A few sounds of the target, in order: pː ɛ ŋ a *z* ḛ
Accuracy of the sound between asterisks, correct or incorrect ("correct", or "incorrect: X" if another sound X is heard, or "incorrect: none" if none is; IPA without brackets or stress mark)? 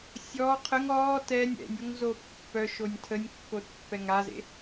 correct